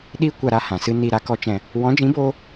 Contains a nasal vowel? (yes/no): yes